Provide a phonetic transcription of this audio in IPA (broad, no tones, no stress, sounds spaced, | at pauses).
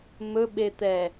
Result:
m ɵ ɓ e t̪ ɛ